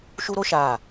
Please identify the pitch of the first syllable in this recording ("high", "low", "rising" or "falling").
high